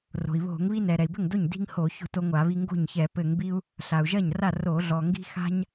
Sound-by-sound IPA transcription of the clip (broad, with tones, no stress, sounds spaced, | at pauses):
r o̤˩ i̯ β o̤˧˩˧ ŋ β i˦ n ɛ˩ ɾ ɛ˩ i̯ b ɘ˥˩ ŋ d o˥˩ ɲ d i̤˦ ŋ h o˧˩˧ ç o̤˥˩ t o˦ ŋʷ a˧˩˧ β i˦ ŋ ɡ o̤˥˩ ɲ ç ɛ˧˩˧ p ɘ˧˩˧ ŋ b i˦ u̯ | ɬ a˩ u̯ ʒ ɐ˥˩ ɲ r a˥˩ r o˧˩˧ ɮ ɔ˩ ŋ ɡ i̤˦ x a̤˦ ɲ